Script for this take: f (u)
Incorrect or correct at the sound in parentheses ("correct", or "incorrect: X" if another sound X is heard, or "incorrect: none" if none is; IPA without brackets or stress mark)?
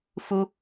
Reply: correct